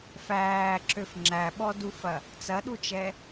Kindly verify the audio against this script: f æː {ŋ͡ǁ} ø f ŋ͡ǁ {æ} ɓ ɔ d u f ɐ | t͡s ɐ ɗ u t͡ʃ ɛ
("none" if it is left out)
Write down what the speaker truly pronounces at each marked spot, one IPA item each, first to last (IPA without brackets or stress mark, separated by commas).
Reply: ǁ, æ